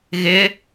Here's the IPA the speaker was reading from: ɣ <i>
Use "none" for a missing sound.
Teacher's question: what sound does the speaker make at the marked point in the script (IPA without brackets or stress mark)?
ɪ